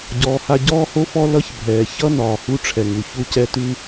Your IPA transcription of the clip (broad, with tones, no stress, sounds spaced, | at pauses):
ɟ ɔː˩ h a˧ ɟ ɔː˥ h o˥ f ɔ˥ l ʌ˥ ç bʱ ɛː˩ ç ʌ˥ n ɒː˩ h u˥ ʈ͡ʂʰ ɛ˩ ŋ u˩ ç u˥ c ɛ˥ t ʉ˥